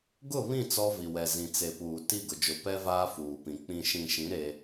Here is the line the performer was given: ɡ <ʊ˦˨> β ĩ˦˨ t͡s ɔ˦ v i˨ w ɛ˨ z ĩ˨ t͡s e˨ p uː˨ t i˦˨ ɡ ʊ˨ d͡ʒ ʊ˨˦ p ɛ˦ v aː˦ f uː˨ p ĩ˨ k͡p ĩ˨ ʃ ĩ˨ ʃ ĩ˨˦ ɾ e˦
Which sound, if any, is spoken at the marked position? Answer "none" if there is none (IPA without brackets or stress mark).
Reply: ʊ˦˨